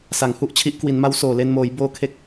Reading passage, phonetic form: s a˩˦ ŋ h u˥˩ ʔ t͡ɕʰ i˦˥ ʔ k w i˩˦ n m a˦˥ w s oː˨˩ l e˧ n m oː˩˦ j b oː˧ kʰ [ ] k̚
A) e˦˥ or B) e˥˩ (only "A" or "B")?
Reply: A